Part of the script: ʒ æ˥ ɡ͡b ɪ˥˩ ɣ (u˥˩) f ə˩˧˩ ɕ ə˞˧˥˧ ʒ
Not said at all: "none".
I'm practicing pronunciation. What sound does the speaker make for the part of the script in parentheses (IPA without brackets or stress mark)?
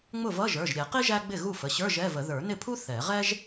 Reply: u˥˩